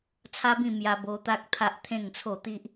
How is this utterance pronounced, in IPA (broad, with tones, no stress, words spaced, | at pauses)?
t͡sʰa˦bĩ˥˧ mja˧bo˧ t̪a˦k̚ t̪ʰa˦ʔt̪ʰẽ˥˧ŋt͡sʰo˥˧ t̪i˦ʔ